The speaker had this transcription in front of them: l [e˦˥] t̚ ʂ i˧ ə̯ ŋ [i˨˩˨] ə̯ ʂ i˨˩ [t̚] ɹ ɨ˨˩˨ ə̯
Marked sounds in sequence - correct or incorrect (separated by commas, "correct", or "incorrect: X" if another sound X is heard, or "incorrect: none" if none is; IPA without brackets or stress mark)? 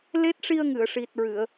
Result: correct, incorrect: ɨ˨˩˨, correct